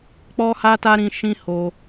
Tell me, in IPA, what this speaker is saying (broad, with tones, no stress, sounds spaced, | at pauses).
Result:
k͡p ɔ˦ h a˦ t a˦ ɾ ĩ˧ ʃ ĩ˦ h o˧